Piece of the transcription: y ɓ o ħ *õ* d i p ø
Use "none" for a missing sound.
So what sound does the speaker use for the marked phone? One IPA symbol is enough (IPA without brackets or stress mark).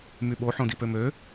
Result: õ